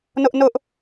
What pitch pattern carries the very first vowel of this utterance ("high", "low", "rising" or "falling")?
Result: high